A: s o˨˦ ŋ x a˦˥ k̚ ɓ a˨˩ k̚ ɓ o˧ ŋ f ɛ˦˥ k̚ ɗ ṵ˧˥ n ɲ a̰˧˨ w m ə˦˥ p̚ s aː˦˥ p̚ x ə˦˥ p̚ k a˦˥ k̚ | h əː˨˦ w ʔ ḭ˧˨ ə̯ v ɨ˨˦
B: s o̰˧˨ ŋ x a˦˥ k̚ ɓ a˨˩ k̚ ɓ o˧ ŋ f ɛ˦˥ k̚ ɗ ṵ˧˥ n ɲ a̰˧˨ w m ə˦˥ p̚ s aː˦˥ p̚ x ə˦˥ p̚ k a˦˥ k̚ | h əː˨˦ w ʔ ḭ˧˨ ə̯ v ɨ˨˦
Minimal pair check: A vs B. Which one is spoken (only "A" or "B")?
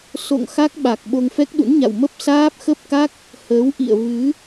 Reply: B